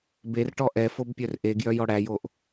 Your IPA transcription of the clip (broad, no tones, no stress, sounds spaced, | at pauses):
b e r ʈ ɔ ʔ ɛ f o b pʲ œ r ʔ e ɡ j œ j ɔ ɽ æ j o ʔ